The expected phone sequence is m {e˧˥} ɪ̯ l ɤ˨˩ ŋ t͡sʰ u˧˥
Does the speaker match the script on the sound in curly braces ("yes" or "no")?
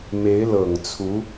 yes